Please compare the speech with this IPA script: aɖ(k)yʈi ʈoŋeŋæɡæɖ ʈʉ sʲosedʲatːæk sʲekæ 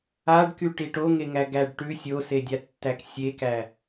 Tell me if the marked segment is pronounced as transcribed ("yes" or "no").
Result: yes